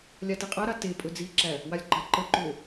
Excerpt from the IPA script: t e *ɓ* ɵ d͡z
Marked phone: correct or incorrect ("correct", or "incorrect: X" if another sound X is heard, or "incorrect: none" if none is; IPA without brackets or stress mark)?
incorrect: pʼ